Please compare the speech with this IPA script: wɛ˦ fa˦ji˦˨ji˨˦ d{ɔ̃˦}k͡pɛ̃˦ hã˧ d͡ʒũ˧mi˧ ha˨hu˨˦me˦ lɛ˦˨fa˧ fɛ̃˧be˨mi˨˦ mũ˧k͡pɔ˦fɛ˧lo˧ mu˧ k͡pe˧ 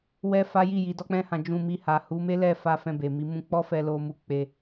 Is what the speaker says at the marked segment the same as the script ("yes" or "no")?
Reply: no